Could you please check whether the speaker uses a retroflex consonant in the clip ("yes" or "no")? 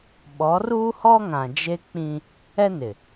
no